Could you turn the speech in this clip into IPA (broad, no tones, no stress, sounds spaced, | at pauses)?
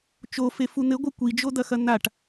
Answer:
t͡ʃ o f e f u n̪ ɘ ɡʷ ɐ kʷ i d͡ʒ o d̪ ɐ x ɐ n̪ a ʈ